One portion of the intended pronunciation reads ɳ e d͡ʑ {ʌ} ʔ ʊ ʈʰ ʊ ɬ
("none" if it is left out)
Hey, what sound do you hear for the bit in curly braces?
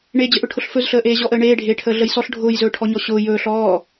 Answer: ə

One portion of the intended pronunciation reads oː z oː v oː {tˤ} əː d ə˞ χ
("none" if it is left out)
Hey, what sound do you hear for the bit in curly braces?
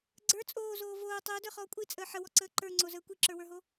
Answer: tˤ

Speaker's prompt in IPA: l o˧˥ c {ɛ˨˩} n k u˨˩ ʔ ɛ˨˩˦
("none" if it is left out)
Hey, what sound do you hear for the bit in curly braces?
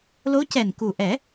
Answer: ɛ˨˩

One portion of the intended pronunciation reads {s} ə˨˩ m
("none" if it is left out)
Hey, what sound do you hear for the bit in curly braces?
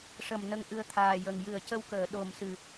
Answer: ʂ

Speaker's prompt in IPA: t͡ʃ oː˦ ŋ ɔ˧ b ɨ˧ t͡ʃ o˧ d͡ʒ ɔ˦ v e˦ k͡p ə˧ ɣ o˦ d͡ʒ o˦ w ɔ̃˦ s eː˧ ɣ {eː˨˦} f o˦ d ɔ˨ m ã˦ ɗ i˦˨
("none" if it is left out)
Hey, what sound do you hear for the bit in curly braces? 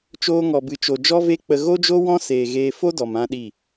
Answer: eː˦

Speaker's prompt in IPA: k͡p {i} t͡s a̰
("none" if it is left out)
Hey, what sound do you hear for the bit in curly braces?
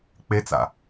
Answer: e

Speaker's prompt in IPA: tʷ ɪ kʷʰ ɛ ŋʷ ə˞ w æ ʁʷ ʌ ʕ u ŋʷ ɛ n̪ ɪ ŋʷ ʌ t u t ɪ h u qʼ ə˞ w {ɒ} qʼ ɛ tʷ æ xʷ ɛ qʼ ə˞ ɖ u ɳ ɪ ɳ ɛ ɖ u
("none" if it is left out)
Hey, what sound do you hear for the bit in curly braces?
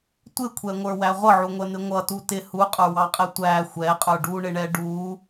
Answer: ɑ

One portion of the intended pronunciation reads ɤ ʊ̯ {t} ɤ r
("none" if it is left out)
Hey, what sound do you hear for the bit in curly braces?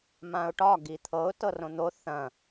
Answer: t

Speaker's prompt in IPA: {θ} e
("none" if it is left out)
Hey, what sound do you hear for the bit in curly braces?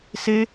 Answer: s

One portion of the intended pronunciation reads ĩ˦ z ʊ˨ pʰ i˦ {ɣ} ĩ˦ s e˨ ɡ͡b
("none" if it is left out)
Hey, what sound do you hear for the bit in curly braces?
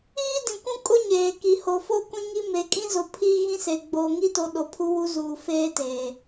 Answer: ɣ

